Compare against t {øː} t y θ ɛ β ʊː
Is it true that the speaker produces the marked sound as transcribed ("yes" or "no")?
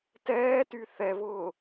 no